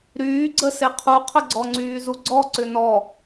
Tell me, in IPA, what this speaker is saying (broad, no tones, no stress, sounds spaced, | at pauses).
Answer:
ɾ yː ɡ͡ǀ ə s e qʰ u qʰ ə ɡ͡ǀ ɔ ŋ͡ǀ yː z u ɡ͡ǀ ɔ ǀ ʏ n ɔ